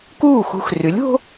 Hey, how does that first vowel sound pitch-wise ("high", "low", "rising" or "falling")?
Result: falling